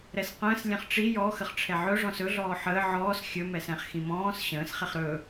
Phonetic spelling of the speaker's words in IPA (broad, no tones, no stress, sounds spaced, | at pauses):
ɾ ɛ s q ə̃ː s lʲ ɛ̃ χ ʈ͡ʂ i j ɔ x ə χ ʈ͡ʂʰ ɛ ʕ ɵ ʐ ɔ̃ s ɵ ɮ ɔː ħ əː ʕ ɔː s xʲ ɵ m ɛ s ɛ̃ χ x ĩ m ɔ̃ː s ɕ ə̃ː s χ ɛ χ ɾ ɵ